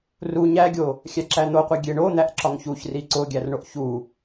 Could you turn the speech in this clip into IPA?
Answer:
r u ɲ æ ɡʲ o | xʲ æ ǁ æ n̪ o qʷ i ɡʲ e ɳ o n̪ æ ʔ ǁ ɒ ŋ ç u ç r i ǀ o ɡʲ æ r ɳ o ʔ ç u

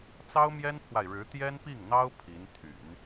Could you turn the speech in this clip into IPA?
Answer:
t͡s ɑ˥ ʊ̯ m j ɛ˥ n pʰ w a˨ ɪ̯ ɻ ɻ̩˧˥ t̪ j ɛ˥ n p i˥˩ ŋ n̪ ɑ˥ ʊ̯ pʰ i˧˥ n t̪ʰ y̰˨˩˦ n

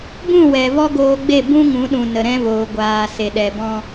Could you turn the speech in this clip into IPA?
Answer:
b ũ˦˨ w ɛ˨ v ɔ˦ ɡ oː˧ ɡ͡b e˦˨ b ũ˦ ŋ ũ˨˦ ɗ ũ˨ n ə˨ ɾ ɛ̃˦ v oː˨ ɡʷ aː˨ s e˨ ɗ ɛ˨ b ɔ̃˦

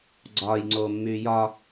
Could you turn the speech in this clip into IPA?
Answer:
ɡ͡ǀ ɒː j ŋ͡ǀ oː mː yː j ɒ

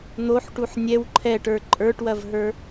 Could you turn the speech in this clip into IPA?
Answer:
n̪ o ħ ʈ u ħ nʲ ɛ w ǃʰ ɛ ʈ ə˞ ǃʼ ə˞ ʈ w ɐ v ɦ ə˞

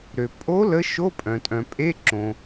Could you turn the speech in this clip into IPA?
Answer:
ɾ ø˩ pʼ o˧˥ l ə˧˥ ʃ o˧˥˧ pʼ œ̃˩ tʼ œ̃˩ pʼ e˧˥˧ ǁ õ˩

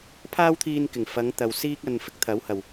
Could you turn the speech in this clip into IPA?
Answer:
pʰ aː˥ w t̪ʰ iː˧ n k ɪ˨˩ ŋ f ɐ˨˧ ŋ t̪ ɐ˨ w s iː˥ k̚ ɐ˧ n f ɪ˥ k̚ t̪ʰ ɐ˨˥ w h ɐ˨˩ w

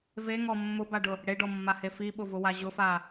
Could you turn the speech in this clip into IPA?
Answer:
v e ŋ ɔ mː ʊ b a ɖ ʊ | ɽ e ɖ ɔ mː a h e f i ɓ ʊ v ʊ w a ʑ ʊ f a

